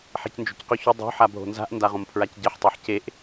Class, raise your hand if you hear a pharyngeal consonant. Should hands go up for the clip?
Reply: yes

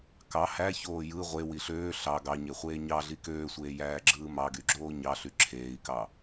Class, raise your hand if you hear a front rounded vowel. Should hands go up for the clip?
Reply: yes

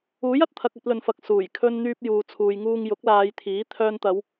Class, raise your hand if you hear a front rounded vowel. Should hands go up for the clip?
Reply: yes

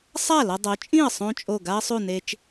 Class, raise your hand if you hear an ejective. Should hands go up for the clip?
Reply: yes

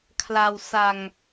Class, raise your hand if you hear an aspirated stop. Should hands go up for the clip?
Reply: yes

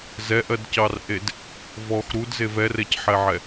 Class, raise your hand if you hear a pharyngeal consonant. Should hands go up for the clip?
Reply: yes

